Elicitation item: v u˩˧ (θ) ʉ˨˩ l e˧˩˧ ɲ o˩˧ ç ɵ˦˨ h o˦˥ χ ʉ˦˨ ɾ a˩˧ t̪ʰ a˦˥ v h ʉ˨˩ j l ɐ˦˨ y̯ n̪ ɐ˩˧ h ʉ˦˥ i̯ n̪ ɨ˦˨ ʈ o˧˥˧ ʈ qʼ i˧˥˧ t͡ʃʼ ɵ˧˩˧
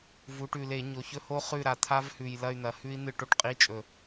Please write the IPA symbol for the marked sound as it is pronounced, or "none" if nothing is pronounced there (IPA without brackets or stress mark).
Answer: ʈ